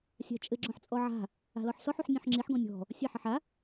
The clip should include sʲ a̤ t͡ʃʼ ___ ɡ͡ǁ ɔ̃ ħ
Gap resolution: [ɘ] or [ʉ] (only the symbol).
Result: ɘ